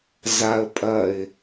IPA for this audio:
z a ə̯ pʼ ɐ ɪ̯

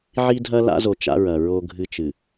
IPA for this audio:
ʕ i˦ dʱ ɐ˦ l a̰˦ z o˨ t͡ʃ a̰˦ ɹ ɐ˨ ɹ o˦ ɡʱ ɨ˦ t͡ʃ ɨ˨

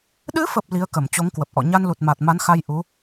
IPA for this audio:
ɗ ɨ˨˦ f ə˨˩ p̚ l i˨˦ ə̯ k ə˧˩ m t͡ɕ o˨˦ ŋ k w ə˨˩ p̚ ʔ ɔ̰˧˨ ɲ a˧ n l u˨˩ t̚ m a˨˩ t̚ m a˨˦ n x a˧ j ʔ u˨˦

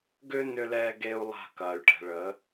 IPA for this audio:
ɡ ʏː˦ n ʏ˦ l ɛː˦ ɡ e˦ u̯ lˠ a̤˦˨ k ɐː˨ y̯ ʈ ɛ̤˨ ɭ ə˨˦

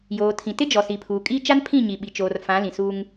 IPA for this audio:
j oː˨ tʰ ĩ˨ t ɪ˦ d͡ʒ ɔ˨ s i˨ pʰ uː˨ kʼ i˦ t͡ʃ a˦ n pʰ ĩ˦˨ ɲ i˨ ɓ i˨ t͡ʃ oː˨ r f ã˨˦ l ĩ˨ s uː˦ ŋ

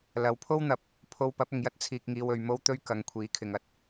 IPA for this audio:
l ɐ˨ w pʰ o˥ w n̪ ɐ˨˥ p̚ | pʰ o˧ w p ɐ˨˥ p̚ ʊ˨ ŋ j ɐ˥ t̚ t͡sʰ iː˧ k̚ ŋ iː˧ w ɵ˨˧ ɥ m o˥ w t̪ ɵ˥ ɥ k ɐ˨˧ ŋ kʷʰ iː˨˥ kʰ ɪ˨ ŋ ɐ˥ t̚

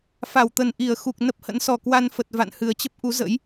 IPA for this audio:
f a˧˩ w t̪ ə˨˩ n ʔ i˧˩ ə̯ x u˨˩ k̚ n ə˦˥ p̚ h ə̰˧˥ n s ɔ˨˩ k w a˧ n f ə˨˩ t̚ v a̰˧˨ n h ɨ˨˩ ə̯ t͡ɕ ə˦˥ p̚ ʔ u˨˦ z ə̰˧˥ j

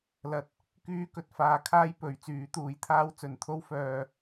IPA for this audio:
l ɐ˧ t̚ | k yː˥ k ɵ˧ t̚ f aː˨˧ kʰ aː˥ j p ɵ˨˥ ɥ t͡s yː˨˥ t̪ uː˨˧ j t̪ʰ aː˥ w t͡s ɵ˨ n t̪ʰ o˥ w f œː˧

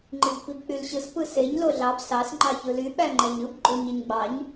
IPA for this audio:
ŋ͡ǃ i b p i b k͡p y l ɕ ɯ s p ɯ s e ɲ l o ɮ ɑ b s ɑ s ŋ͡ǃ ɑ ç ɯ l y ɓ æ ŋ͡ǃ æ ɲ ɯ b ɡ͡ǃ o ɲ ɯ ɲ ɡ͡b ɑ ɲ

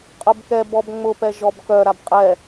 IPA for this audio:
qʼ ʊ b k ɛ b ɔ b ŋ͡m ʊ p ɛ ʒ ɔ b k œ ɾ a b qʼ ɛ

